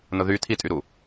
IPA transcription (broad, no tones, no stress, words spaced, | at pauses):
nʊðy tʰitʼyɾu